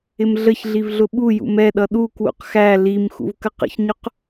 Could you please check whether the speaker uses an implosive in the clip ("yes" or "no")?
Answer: yes